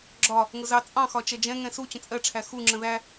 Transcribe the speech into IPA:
ɡ͡ǁ ɒ | ŋ ʊ z ɑ t͡sʼ ɑ̃ x ɒ t͡ʃ ɛ d͡ʒ ɛ̃ ŋ ɛ̃ s u t͡ɕ ə̃ t͡sʼ ɜ ʈ͡ʂʰ æ x u ŋ͡ǁ ə̃ ð æ

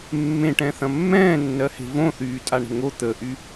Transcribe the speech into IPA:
mː ẽ ʈ ɛ̃ θ ɐ̃ mː ɛ̃ː nː ɜ h e̤ v õ θ yː tʼ a ɳ ə̤ ŋ o t̪ ə ʔ y

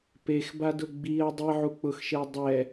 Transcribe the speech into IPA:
p e x b a d ʊ ɡ͡b i ɐ̯ dˤ i ʕ u k͡p ʊ x ʃ e ɐ̯ dˤ ɛ

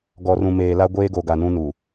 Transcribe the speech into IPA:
ɡ ɔ˨ r ũ˨ m eː˨ l a˦ ɡʷ eː˦ ɡ o˨ ɡ a˨ n ũ˦ n u˨

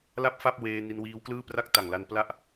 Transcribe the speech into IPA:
l a˥˩ p̚ f a˥˩ p̚ w eː˧ n i˧ n w iː˦˥ w k l ɯː˥˩ p r a˥˩ k̚ t a˨˩ ŋ l a˧ n p l a˥˩ ʔ

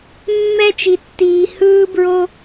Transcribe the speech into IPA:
mː ɛ˥ t͡ʃ i˧ tː iː˧ h ɯː˥ b ɹ o˥

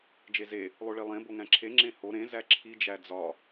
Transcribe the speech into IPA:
d͡ʒ e z e | lˠ o ɭ i lˠ ẽ b o ŋ æ̃ ǁʰ e ŋ͡ǁ ẽ h o ɾ ẽ z æ ǁʰ i d͡ʒ æ d͡z ɒ

